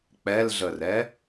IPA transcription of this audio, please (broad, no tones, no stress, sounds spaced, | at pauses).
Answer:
k͡p ɛ l ɮ ə r ɛ